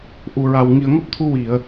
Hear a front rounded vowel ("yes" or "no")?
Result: no